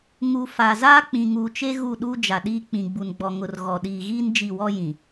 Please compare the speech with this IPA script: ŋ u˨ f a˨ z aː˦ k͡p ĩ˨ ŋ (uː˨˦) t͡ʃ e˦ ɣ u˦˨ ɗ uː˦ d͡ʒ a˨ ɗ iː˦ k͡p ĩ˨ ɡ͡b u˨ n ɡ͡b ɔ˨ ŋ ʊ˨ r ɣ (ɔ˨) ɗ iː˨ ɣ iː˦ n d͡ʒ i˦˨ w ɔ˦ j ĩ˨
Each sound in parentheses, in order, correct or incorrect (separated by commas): incorrect, correct